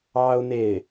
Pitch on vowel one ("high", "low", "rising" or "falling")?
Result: high